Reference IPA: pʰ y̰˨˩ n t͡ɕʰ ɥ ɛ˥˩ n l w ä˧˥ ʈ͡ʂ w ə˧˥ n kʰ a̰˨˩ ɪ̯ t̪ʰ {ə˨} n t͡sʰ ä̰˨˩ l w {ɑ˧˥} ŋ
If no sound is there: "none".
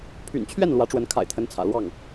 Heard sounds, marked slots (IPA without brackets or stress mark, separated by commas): ə˧˥, ɑ˥˩